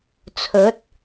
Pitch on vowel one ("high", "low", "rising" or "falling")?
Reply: rising